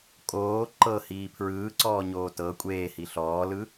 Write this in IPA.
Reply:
kʼoː ǃɤhiː pʰɹɯːǀɔːɲoː tɤ kʷʼeːhi ɬɔːlɯ

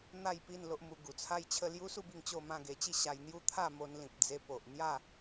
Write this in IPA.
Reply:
n̪a˥˧jpi˥˧n lo˦ʔmu˧ ɡu˨˩t͡sʰa˦jt͡ɕʰə˥˧ lju˦su˥˧bi˧ŋ t͡ɕo˥˧mã˥˧ɡe˧ t͡ɕi˥˧ɕa˧jn̪ju˥˧ t̪ʰa˥˧mo˧nlĩ˨p̚ d͡ze˧po˨ʔn̪ja˥˧

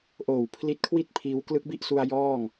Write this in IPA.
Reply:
ʔoː˨˩w pʰli˦˥t̚kʰwi˥˩t̚pʰiː˧w klɯ˦˥k̚bi˥˩ʔsu˧a̯ jɔː˥˩ŋ

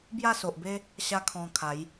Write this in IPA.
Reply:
bja˥˧so˨ʔbe˦ | ɕa˦kʰɔ̃˧ kʰa˨˦j

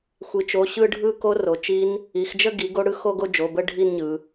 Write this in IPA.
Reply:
xʷi˩˧t͡ʃo˩˧˩ ɕɯ˥˧ɖʱɯ˥˧ko˦˥ ro˩˧t͡ʃi˦˥n | i˩˧xd͡ʒə˥˧ ɡi˩˥ɡo˦˥ɽɯ˥˧ xo˥˧ɡo˥˧d͡ʒo˩˧˩bə˥˧ ɖʱi˥˧nɲɯ˩˧

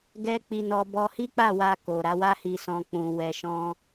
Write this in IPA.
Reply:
ɡɛ˦k͡pi˧nɔ˧ bɔ˧hi˦k͡pa˦˨ wa˧ko˨ ɾa˨˦wa˦hi˧sɔ̃˧ k͡pũ˨ wɛ˨ʃɔ̃˧

